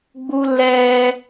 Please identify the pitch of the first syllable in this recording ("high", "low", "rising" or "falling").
high